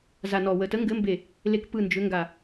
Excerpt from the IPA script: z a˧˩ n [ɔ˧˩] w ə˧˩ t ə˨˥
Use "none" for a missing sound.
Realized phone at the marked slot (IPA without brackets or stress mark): ɔ˧˩